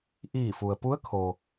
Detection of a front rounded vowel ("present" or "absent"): absent